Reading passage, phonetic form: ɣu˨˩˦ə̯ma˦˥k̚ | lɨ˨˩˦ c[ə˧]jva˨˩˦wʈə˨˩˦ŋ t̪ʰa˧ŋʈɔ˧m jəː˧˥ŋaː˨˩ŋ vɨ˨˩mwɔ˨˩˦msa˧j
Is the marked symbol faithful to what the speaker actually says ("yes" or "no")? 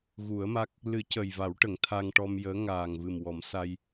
no